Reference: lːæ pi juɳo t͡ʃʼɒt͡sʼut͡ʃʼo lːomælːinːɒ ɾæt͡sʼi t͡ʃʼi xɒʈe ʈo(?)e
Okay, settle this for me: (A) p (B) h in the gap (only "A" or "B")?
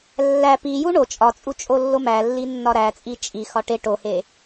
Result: B